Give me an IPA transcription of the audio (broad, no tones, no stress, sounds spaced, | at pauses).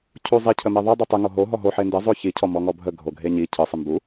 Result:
cʰ u zˤ i cʰ ə m e ðˤ i dˤ i tˤ ɨ ŋ o ɦ o ɦ ɔ ɦ o ħ e n d e zˤ o ç i cʰ ɔ m ɔ ŋ ɔ bʱ ə ɡʱ o ɡʱ e ɲ i cʰ ɨ sˤ ɨ m b u